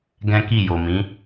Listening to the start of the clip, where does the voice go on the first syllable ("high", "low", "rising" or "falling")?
high